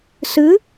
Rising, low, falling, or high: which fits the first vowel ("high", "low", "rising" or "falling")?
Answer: rising